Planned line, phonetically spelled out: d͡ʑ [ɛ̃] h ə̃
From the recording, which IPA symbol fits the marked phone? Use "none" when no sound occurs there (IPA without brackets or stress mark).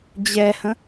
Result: ɛ